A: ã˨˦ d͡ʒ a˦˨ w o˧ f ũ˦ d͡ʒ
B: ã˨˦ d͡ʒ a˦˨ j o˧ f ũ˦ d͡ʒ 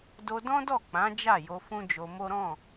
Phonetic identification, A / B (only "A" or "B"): B